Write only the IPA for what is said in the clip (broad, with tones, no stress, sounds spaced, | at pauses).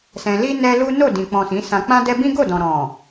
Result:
s ɛ̃˧ l i˦ n ɛ˦ l u˦ n o˦˨ d ĩ˨ k͡p ɔ̃˨ s ĩ˨˦ s ã˧ k͡p ã˦ d ɛ˦ b ĩ˦ ɡ o˦˨ d ɔ̃˨ ɾ ɔ̃˨